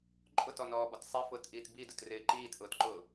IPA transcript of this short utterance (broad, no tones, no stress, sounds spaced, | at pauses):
ǃʼ ʊ t ɔ n ɔː b ɔ t sˤ i f ʊː t ʔ iː t b i d ʊ t r ɪː ǃ iː t ʔ ʊː t ǃ ʊː